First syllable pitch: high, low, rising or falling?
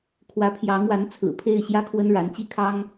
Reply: rising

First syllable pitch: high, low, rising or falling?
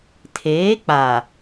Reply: rising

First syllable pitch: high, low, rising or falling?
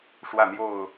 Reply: falling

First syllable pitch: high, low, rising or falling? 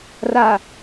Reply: low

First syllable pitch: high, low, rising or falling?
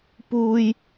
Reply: high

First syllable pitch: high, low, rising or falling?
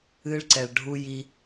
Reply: high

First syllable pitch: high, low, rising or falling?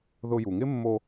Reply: high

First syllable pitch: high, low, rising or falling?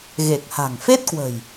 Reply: low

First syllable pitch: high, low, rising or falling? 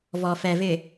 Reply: low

